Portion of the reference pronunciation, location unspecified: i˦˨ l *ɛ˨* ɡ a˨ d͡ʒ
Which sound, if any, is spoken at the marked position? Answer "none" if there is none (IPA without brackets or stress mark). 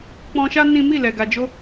ɛ˨